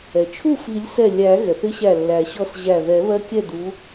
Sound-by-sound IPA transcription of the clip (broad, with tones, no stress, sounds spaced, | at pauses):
ɛ˩ t͡ʃʰ u˥˩ f i˨˩˦ lʲ s ɛ˧˩ lʲ æ˨˩˦ ɣ ɛ˩ θ ɪ˧˥ ɕ æ˧˩ lː æ˨˩˦ ɕ ɔ˥˩ s ʑ æ˧˩ ð ɛ˨˩˦ β ɜ˧˥ kʲ ɛ˥˩ d u˧˥